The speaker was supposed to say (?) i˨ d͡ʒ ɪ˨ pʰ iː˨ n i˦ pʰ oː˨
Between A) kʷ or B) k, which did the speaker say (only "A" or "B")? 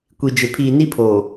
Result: A